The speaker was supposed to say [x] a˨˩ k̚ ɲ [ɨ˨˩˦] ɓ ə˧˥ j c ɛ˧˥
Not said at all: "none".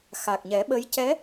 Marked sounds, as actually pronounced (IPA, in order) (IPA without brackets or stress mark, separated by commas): x, ɛ˨˩˦